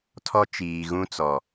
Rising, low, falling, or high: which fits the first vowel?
high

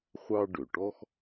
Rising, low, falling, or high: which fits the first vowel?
high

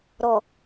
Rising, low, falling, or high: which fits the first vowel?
low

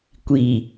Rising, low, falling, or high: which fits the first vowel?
low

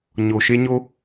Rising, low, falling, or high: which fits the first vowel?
low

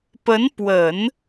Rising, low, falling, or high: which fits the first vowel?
rising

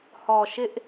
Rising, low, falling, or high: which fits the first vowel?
low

